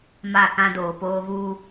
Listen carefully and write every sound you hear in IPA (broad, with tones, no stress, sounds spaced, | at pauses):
m a˦˨ k ã˦ d oː˨ p oː˦ ɣ uː˦